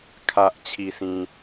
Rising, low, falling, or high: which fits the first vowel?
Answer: high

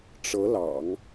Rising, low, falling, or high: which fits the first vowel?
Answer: rising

